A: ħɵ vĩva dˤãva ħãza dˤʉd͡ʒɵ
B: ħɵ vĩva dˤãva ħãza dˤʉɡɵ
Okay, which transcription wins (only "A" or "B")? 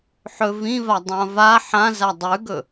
B